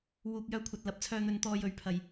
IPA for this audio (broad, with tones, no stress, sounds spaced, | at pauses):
w uː˨ k̚ j œː˧ kʷʰ ɐ˨ t̚ l ɐ˨˥ p̚ t͡sʰ œː˧ n̪ ɵ˧ n t̪ ɔː˧ j ɵ˨˧ ɥ pʰ ɐ˨ j